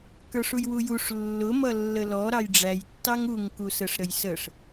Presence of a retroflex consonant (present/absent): present